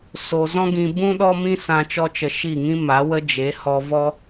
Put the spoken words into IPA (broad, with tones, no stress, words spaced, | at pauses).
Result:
so˧ zɔ̃˦ɡĩ˧ bũ˦ ɗɔ˦mĩ˦sã˧ t͡ʃɔ˦t͡ʃə˧ʃi˦˨ŋĩ˦ ma˨˦wə˧d͡ʒe˨˦ hɔ˧vɔ˦